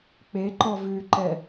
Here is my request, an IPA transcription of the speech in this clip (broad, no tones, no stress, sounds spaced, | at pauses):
k͡p e ǃ ɔ v ʉ ǃ ɛ